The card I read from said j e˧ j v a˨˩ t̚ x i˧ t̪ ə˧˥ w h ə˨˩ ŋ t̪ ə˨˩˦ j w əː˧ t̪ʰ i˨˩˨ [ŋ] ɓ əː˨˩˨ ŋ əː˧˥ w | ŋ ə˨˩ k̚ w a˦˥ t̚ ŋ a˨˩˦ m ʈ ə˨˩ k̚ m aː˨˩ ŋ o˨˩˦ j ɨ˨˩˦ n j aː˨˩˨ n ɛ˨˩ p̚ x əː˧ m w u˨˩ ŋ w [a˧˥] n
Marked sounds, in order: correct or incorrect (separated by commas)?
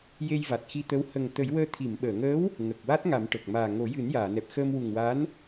incorrect, correct